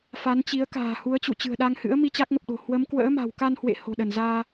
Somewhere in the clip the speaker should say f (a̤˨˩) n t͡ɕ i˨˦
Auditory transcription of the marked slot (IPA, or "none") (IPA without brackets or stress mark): a˨˦